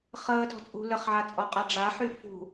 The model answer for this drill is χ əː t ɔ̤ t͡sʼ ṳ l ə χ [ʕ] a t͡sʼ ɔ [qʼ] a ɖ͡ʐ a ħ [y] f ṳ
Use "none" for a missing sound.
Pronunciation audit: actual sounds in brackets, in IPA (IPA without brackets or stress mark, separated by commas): ʕ, qʼ, y